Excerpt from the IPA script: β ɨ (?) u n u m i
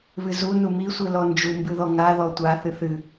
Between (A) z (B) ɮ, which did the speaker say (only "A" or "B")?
A